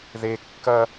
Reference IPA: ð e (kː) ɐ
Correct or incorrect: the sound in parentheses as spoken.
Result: correct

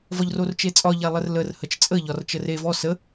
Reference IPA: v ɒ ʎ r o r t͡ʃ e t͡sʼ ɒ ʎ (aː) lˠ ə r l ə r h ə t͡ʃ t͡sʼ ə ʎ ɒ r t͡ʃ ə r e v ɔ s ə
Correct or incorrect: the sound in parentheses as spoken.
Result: incorrect: a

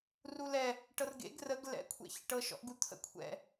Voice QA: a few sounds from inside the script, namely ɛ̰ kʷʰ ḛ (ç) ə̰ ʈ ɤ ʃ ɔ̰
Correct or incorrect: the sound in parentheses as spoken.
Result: correct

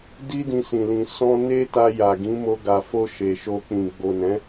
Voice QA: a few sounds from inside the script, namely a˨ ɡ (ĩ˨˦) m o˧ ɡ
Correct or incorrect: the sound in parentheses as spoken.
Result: correct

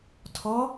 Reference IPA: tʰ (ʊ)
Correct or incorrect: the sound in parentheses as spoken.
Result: incorrect: ɔ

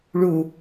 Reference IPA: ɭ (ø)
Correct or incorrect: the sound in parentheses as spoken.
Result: incorrect: u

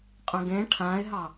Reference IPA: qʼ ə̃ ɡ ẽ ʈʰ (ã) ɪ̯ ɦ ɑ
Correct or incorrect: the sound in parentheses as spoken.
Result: correct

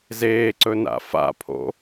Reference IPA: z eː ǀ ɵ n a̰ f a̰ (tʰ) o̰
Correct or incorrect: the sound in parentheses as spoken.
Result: incorrect: pʰ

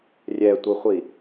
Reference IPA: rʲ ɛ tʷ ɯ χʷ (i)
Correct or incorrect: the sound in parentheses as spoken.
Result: correct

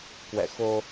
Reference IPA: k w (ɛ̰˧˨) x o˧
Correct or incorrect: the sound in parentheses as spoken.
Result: correct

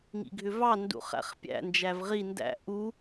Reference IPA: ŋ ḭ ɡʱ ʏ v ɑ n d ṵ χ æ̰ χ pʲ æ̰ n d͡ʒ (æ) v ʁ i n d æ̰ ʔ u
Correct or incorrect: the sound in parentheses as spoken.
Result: correct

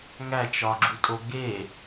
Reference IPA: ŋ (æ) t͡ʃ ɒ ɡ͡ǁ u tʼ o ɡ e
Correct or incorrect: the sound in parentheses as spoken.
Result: correct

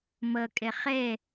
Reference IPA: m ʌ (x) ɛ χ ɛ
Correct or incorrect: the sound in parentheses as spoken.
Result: incorrect: kʼ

